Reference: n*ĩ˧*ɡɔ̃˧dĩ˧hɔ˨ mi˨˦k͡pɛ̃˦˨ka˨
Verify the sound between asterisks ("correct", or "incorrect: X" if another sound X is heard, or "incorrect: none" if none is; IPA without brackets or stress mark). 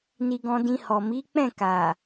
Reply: incorrect: i˧